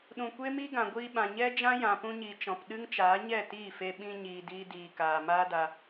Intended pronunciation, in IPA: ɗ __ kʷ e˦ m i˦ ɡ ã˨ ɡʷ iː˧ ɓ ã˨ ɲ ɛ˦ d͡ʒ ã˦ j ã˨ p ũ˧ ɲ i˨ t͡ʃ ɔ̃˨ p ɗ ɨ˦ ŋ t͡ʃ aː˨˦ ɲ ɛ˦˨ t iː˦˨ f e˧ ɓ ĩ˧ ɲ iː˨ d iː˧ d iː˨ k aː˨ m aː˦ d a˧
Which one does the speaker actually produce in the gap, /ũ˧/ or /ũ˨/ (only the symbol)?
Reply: ũ˨